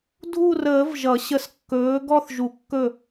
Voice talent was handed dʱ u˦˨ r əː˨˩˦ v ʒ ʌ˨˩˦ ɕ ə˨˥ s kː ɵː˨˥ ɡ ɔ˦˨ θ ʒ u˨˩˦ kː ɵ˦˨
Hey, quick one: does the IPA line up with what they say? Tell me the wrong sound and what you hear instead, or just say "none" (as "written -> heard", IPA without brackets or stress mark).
none